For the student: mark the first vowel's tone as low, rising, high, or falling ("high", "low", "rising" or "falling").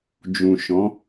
low